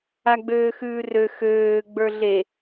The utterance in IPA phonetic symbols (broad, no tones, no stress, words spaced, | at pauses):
aɡ͡bøːxʉːrø xøː ɡ͡bə˞ɮe